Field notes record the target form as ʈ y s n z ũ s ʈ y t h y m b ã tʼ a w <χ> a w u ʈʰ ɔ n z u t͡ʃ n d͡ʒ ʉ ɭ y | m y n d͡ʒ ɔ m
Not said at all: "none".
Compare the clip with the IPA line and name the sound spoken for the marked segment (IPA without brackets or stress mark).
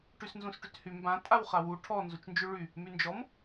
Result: χ